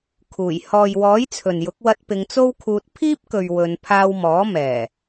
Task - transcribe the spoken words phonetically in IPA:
kʰ uː˨˩ j h ɔː˨ j w ɔː˨˥ j t͡sʰ ɵ˨ n j ʊ˨˥ k̚ w ɐ˧ t̚ p ɪ˨˧ ŋ t͡s o˥ w kʰ uː˧ t̚ pʰ iː˥ p̚ k ɵ˨ ɥ w ɵ˨˧ n pʰ aː˧ w m ɔː˨˥ m ɛː˨˩

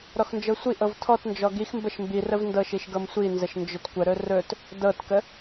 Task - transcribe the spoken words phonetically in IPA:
ɾ ɔ x n d͡ʒ ɤ sʷ i ʔ ɤ v tʰ ɔ t n d͡ʒ ɔ ɡ i x m b ə ʃ m b i r ə v n d ɤ ʃ i ʃ ɡ ɤ m sʷ i n z ə ʃ n d͡ʒ ɵ t kʷ ə ɾ ɵ r ɵ t | d ɤ t k ə

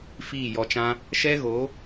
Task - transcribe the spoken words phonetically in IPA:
f iː˦˨ j ɔ˧ t͡ʃ ã˦ | ʃ ɛ˦ ɣ o˨˦

